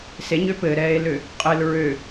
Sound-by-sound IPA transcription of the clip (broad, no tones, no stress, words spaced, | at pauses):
seɲø pɘɾɛːe̯lø | qʼɘl ɹø